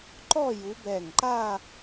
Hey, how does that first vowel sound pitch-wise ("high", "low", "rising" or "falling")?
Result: falling